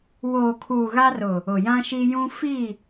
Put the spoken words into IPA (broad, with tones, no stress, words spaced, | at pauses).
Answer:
woː˨kʰuː˨ ɣa˦rʊ˨ | ʊ˨jã˦ʃi˦ jũ˦ fi˦˨